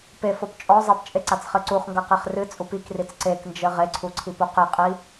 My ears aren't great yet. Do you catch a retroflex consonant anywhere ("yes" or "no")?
no